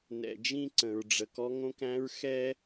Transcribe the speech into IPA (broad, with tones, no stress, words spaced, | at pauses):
nɛ̰˨d͡ʒĩ˦ ǀə̃˨ɹɖ͡ʐə˨kɔ˦ ŋõ˦kæ̃˦ɹ xɛ˦